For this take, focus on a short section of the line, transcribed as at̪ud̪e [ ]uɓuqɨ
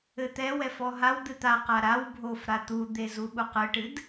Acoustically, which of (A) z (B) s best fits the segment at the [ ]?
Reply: A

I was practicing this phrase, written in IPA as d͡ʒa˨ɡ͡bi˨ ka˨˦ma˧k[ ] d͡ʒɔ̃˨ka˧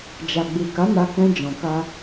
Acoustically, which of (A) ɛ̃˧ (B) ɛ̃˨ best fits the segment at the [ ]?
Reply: A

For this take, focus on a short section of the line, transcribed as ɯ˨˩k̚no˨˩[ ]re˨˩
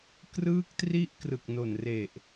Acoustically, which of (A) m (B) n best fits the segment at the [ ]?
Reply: B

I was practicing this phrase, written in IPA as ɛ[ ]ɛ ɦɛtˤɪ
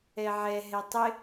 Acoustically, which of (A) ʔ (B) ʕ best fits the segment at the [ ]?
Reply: B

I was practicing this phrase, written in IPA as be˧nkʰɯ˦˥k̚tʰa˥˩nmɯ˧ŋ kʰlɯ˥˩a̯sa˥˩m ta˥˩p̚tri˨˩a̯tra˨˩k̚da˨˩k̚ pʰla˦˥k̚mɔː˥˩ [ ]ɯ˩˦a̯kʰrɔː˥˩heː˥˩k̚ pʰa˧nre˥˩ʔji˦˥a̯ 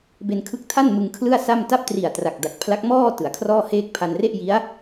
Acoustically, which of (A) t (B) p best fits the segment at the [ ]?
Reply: A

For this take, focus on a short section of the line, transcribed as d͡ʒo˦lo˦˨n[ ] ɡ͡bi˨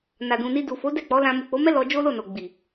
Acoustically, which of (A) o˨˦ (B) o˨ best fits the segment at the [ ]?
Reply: B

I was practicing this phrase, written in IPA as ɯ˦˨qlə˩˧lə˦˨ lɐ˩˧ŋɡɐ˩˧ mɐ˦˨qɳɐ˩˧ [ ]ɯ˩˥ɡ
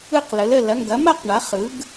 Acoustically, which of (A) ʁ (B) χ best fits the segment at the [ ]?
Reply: B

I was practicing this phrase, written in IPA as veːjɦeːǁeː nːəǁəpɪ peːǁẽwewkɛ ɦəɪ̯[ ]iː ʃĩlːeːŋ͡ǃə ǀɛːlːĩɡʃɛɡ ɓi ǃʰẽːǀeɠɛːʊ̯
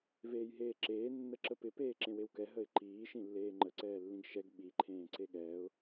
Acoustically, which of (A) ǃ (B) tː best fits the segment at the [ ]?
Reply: A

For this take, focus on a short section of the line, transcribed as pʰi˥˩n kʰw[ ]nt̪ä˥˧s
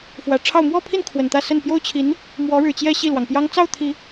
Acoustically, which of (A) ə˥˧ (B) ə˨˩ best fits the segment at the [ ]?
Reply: B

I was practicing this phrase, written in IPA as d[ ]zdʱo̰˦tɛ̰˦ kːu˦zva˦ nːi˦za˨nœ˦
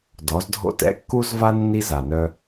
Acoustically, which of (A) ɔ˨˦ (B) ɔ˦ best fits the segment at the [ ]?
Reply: A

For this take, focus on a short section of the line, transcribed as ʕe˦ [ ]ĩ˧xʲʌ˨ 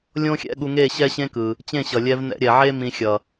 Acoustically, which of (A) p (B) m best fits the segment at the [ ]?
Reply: B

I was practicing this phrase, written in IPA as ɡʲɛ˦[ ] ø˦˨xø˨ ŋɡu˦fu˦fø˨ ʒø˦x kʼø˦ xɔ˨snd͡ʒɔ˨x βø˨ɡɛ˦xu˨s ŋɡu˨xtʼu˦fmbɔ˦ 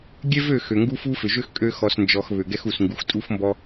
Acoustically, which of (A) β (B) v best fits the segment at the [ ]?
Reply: B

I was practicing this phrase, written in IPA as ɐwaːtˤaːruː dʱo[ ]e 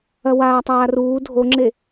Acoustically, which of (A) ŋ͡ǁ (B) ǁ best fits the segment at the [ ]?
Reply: A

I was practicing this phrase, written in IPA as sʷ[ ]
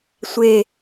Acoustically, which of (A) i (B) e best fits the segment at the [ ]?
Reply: B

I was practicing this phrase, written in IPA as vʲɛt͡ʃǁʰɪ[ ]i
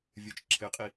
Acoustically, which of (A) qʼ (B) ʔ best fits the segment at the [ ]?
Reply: A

